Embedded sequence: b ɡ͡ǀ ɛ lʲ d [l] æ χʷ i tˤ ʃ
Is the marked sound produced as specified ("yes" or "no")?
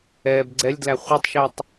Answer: yes